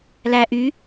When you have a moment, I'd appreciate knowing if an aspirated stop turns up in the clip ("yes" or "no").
no